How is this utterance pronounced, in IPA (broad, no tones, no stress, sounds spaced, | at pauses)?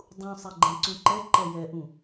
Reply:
dˤ ũ sˤ ɛ ɡ͡ǃ ɛ̃ ǀ ũ ǃ ɛ ǃ ɛ j ɛ ʔ ũ